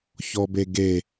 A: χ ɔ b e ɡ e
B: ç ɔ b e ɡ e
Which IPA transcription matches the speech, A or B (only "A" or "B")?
B